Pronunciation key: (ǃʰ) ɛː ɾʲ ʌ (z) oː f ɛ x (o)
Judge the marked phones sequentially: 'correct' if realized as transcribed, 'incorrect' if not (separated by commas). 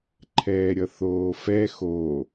correct, incorrect, correct